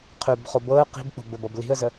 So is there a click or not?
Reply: no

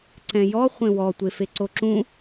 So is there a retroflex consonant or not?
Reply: no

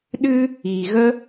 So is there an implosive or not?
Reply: yes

